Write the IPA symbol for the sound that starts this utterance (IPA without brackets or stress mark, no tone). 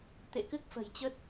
t̪